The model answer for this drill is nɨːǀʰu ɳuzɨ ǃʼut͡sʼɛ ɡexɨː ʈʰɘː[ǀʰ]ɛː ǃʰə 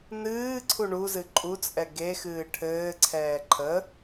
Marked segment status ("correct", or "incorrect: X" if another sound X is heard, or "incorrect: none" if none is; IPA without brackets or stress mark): correct